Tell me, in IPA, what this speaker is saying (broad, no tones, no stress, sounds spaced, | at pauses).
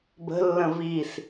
b ə̤ lː ə̃ v i s